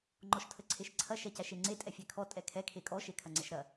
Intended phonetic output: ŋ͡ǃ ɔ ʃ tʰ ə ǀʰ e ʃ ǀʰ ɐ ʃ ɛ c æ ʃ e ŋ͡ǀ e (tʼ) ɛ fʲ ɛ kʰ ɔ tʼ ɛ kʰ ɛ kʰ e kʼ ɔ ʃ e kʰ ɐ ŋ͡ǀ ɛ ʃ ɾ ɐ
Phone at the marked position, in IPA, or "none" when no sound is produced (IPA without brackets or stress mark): tʼ